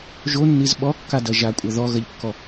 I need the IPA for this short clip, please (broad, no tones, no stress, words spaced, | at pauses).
ʒonːiz ɓɔkːadɐ ʒakʷʼɐ ðɔɣɐʎkːɔ